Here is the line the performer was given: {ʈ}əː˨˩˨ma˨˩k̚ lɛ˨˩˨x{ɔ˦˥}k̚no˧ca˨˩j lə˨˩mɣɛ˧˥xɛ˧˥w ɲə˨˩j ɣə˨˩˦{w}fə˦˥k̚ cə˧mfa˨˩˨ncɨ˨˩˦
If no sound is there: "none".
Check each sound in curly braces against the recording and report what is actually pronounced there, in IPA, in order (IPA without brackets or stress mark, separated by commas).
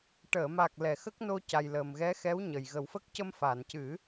ʈ, ə˦˥, w